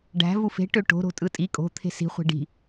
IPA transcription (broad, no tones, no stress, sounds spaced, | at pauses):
ɖ æ̤ v u f e̤ ʈ ø ʈ o̤ ɾ o̤ tʼ ɯ tʼ i kʼ o̤ t̪ʰ e̤ s i̤ χʷ e̤ ɖ i̤